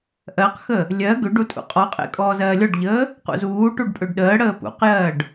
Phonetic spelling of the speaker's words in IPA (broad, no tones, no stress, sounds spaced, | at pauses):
ʔ ɜ q x ə | lʲ ɜ ɡ ø ɖ u tʼ ṵ qʼ ɔ qʼ ḛ kʼ ɔː z ɜː lʲ ɔ ɖ ʎ əː | q ṵ z uː ʈ u ɖ pʼ ø ɖ ɗ əː ɽ əː p ṵ q j ɜː ɖ